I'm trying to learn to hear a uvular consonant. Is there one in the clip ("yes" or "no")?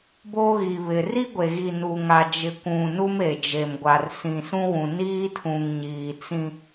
no